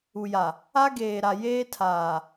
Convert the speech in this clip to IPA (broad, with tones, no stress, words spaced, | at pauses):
u˨ja˨ | a˦ɡeː˨ɾa˨ jeː˦tʰaː˨